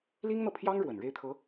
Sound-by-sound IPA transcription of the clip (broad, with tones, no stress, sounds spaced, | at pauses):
l i˥ ŋ n̪ ɤ˨ pʰ j ɑ˥ ŋ ɻ w ə˨˩ n ɻ e˥˩ ɪ̯ t̪ʰ ɤ˧˥